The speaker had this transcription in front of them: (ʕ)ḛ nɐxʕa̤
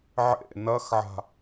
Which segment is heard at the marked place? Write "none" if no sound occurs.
ʕ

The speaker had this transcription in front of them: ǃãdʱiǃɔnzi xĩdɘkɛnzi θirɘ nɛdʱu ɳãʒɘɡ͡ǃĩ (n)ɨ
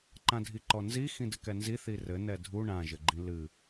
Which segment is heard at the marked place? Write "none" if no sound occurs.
l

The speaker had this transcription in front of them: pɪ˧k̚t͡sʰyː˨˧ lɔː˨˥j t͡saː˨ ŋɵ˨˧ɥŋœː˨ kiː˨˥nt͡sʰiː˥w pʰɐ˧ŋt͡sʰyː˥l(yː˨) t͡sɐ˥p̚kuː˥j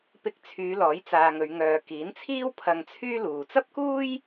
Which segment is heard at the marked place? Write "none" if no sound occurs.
uː˨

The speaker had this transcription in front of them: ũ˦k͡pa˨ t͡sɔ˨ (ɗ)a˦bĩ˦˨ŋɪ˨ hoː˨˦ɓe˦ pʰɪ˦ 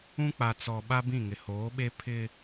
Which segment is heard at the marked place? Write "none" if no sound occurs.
ɓ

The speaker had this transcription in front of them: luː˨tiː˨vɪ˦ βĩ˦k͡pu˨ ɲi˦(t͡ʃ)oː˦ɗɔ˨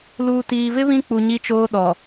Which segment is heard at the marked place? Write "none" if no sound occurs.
t͡ʃ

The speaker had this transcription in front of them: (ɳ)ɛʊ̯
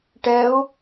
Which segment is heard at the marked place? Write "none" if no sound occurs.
ʈ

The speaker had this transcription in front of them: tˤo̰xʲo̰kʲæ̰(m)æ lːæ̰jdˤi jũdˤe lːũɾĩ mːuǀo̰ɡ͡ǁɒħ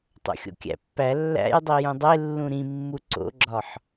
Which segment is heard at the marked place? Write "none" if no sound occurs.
pː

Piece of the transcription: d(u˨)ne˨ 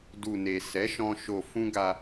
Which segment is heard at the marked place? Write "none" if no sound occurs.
u˨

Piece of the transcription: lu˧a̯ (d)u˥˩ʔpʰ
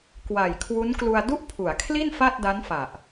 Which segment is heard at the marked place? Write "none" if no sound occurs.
d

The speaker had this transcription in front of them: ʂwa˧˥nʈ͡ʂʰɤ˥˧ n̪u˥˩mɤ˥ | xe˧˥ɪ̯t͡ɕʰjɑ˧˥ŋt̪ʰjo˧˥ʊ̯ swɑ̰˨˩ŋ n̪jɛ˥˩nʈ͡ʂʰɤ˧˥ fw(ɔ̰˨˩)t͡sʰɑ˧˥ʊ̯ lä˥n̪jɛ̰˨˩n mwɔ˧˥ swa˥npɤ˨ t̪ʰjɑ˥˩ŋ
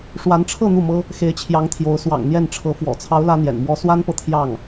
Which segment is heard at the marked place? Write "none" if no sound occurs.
ɔ̰˨˩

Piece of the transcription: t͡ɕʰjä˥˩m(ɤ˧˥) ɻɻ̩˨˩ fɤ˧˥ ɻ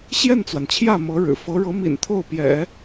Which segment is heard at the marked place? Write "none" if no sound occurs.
ɤ˧˥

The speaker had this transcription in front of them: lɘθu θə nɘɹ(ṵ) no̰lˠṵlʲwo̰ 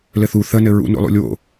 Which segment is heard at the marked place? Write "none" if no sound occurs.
ṵ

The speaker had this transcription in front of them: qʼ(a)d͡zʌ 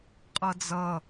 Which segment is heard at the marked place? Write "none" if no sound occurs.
ʌ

